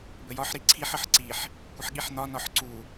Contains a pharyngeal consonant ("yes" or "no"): yes